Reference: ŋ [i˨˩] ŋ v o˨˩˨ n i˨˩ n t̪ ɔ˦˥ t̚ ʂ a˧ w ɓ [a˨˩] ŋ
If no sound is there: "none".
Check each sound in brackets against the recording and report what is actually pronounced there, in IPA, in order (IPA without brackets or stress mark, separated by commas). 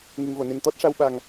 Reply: i˨˩, a˨˩